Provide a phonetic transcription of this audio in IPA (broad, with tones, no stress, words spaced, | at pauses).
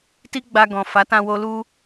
ti˦ɡ͡ba˧ɡɔ̃˨ fa˨˦tã˧wo˧ lu˧